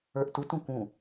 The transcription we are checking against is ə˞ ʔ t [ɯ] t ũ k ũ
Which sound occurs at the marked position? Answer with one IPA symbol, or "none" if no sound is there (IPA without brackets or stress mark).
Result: u